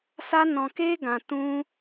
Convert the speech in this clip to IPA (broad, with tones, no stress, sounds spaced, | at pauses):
s a˦ n ɔ̃˧ k e˦ ɡ ã˧ t ũ˦